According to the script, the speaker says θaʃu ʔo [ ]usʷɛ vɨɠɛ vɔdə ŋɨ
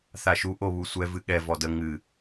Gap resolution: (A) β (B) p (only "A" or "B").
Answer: A